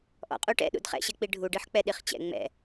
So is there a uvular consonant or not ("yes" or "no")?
yes